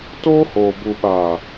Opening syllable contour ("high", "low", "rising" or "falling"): high